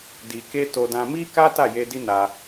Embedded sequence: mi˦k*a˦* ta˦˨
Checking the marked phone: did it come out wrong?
no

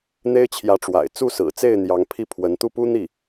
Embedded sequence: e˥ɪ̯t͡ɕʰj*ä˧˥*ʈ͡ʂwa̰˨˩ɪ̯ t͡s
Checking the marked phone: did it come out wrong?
no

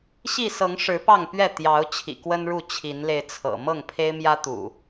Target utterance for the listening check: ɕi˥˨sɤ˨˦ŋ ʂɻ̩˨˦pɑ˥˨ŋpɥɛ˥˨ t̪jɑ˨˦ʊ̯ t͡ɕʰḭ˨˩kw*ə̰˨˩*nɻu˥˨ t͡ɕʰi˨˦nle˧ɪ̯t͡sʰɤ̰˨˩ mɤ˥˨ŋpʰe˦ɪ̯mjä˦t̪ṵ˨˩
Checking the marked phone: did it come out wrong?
yes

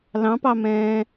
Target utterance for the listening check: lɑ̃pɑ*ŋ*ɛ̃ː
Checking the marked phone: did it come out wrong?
yes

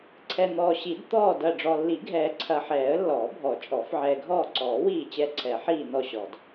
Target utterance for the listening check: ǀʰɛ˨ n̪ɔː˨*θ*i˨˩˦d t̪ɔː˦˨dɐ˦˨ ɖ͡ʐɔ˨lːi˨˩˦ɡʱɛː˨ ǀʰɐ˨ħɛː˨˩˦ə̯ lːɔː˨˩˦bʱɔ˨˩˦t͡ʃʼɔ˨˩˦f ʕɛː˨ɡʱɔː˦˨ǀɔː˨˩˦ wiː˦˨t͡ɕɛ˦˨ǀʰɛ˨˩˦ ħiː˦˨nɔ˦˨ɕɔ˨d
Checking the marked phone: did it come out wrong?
yes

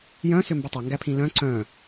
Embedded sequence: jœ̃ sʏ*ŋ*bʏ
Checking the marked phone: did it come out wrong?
yes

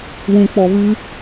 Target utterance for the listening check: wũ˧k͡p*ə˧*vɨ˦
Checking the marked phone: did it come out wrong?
yes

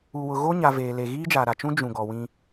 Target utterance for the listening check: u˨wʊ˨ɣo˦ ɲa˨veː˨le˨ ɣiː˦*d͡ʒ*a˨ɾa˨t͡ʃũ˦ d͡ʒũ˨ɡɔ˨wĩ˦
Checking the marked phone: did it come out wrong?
no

